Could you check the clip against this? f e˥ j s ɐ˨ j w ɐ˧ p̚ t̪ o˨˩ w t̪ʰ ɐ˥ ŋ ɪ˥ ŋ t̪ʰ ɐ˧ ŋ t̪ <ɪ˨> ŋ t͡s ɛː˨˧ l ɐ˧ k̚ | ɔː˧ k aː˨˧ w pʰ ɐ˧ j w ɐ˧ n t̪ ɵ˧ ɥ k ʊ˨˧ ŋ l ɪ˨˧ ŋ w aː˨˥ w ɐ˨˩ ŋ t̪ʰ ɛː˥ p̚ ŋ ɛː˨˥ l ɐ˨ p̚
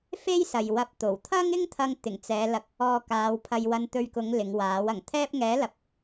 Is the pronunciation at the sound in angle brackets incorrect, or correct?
incorrect